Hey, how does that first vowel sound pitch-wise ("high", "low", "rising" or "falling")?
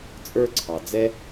high